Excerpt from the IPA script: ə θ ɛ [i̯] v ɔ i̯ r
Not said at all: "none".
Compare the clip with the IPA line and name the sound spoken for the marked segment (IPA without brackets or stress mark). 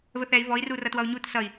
i̯